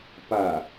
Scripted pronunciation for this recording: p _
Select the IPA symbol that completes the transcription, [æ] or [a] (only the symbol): a